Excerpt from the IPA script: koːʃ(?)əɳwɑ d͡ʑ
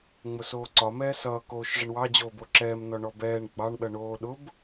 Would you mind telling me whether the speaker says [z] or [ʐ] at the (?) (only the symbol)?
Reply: ʐ